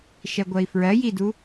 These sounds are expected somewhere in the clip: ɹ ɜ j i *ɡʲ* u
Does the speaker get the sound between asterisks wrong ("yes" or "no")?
yes